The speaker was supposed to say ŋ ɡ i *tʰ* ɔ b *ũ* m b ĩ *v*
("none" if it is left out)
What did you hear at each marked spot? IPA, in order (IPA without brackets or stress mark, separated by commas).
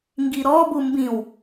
ɾ, u, w